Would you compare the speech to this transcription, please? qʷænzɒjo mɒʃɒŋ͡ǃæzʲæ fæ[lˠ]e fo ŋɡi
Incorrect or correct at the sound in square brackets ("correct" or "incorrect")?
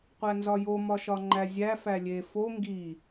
incorrect